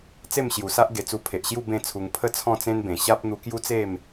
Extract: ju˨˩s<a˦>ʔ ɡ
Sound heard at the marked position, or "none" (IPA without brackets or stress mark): a˦